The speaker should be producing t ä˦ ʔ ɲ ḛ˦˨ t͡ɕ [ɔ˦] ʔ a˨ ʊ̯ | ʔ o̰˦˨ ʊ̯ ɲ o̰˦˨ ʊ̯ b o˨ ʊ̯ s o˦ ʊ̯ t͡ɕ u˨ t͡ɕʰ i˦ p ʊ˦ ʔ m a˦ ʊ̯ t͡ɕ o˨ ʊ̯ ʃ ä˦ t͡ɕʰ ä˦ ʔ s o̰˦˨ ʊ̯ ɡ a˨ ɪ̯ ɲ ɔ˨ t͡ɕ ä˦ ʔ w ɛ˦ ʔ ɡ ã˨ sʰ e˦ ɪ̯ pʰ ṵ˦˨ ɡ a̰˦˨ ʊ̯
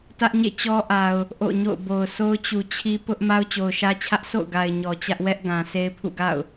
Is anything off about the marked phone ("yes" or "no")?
no